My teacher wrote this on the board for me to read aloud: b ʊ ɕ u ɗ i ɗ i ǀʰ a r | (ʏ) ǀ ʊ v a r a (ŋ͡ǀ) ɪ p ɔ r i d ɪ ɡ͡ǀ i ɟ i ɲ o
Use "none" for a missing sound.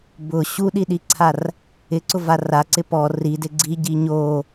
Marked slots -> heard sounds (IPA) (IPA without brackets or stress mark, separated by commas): ɪ, ǀ